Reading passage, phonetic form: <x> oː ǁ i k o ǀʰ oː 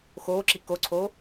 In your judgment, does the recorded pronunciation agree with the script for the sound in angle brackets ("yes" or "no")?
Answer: yes